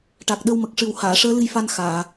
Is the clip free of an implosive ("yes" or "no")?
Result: no